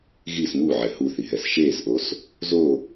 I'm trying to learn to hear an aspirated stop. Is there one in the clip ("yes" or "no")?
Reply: no